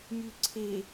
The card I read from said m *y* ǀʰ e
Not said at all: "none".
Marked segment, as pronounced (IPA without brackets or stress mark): y